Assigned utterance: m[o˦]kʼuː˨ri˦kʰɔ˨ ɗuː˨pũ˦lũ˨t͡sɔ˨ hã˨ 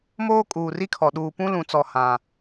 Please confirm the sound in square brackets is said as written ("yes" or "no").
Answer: no